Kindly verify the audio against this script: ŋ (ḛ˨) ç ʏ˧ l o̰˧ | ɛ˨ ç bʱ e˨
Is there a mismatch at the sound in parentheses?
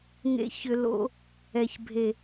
yes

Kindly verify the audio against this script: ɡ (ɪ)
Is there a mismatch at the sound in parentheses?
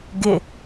no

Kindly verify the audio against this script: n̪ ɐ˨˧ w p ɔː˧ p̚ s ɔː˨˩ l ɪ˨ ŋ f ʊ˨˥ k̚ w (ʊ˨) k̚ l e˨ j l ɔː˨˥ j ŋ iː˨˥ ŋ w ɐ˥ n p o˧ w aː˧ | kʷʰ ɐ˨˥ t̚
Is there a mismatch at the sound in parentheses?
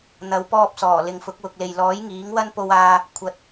no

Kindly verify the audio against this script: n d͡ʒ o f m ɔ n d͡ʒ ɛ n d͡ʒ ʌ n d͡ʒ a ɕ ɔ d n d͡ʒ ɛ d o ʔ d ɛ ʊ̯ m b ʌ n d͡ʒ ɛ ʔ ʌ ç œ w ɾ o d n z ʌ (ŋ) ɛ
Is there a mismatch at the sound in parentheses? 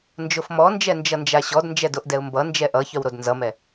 yes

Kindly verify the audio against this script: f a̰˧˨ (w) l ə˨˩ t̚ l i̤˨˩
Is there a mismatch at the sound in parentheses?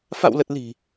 no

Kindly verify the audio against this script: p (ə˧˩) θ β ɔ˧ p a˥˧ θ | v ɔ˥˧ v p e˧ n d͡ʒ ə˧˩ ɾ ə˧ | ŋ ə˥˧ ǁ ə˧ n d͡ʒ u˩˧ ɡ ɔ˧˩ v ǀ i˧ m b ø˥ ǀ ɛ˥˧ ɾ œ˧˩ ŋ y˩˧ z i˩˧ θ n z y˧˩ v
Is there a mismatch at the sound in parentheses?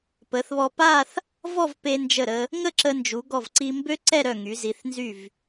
yes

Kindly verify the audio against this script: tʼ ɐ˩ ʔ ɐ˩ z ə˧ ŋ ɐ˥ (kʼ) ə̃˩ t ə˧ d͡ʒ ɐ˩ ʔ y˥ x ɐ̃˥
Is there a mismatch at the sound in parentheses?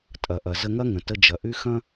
yes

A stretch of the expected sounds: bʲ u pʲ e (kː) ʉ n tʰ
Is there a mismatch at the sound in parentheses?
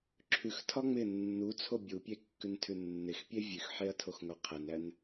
no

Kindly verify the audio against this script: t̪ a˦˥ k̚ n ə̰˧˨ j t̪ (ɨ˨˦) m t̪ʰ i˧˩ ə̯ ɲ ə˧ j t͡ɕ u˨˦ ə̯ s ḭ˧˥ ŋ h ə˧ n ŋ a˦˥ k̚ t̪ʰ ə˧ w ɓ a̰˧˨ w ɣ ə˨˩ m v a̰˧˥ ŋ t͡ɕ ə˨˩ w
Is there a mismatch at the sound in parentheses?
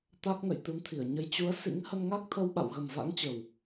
no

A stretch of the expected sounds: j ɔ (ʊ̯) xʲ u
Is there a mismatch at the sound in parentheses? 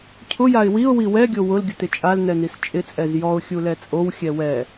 no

